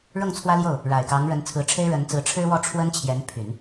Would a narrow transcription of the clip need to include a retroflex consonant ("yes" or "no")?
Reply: yes